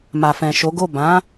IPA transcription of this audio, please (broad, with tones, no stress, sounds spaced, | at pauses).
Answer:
m a˨ f ɛ̃˨ ʃ o˨˦ ɡ o˦˨ b ã˨˦